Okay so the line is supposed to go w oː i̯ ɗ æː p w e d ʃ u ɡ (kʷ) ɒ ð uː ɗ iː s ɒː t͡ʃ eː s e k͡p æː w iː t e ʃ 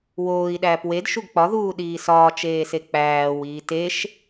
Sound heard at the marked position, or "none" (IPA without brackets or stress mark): k͡p